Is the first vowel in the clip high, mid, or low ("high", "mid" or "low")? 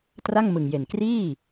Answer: low